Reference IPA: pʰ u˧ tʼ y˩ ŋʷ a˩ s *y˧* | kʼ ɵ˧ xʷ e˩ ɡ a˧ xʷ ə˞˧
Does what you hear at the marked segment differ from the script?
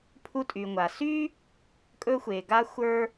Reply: yes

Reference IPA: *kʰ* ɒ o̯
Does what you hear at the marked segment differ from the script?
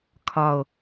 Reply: no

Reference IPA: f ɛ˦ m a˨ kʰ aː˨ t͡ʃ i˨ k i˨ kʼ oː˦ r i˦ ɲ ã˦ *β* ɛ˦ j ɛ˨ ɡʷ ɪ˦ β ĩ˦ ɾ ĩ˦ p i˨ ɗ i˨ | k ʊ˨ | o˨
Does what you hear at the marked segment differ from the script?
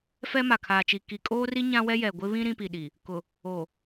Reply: yes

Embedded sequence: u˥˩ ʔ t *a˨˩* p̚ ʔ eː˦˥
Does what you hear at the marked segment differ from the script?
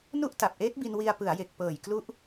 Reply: no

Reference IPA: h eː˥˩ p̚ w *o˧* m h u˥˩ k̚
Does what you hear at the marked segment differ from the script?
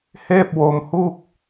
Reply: no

